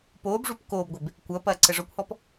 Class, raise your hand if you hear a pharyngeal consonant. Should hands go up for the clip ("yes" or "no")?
no